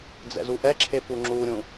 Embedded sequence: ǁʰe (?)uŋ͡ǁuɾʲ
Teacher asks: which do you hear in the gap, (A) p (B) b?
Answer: A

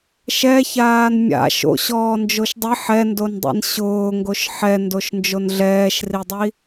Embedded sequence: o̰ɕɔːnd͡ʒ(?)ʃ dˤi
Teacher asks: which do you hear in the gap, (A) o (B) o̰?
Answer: A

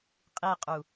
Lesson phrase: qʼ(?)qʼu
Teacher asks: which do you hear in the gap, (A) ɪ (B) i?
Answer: B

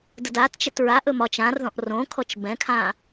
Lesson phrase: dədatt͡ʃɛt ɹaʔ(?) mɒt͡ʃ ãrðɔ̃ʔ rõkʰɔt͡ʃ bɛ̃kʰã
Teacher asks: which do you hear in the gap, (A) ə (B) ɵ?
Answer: B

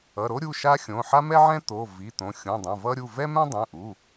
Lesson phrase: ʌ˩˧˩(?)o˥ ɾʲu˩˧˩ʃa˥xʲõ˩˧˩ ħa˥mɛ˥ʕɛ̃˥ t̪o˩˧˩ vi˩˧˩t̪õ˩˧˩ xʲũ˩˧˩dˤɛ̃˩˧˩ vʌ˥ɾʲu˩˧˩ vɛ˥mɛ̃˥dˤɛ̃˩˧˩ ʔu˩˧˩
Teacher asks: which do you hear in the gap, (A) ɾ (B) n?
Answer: A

